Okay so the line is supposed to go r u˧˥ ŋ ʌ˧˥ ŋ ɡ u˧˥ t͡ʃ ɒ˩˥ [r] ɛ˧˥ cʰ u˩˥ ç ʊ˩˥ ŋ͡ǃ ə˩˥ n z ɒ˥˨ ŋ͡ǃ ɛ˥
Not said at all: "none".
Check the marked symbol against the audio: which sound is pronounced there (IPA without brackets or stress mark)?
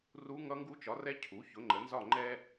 r